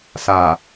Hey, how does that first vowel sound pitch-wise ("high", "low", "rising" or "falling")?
low